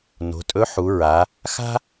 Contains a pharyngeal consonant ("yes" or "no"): yes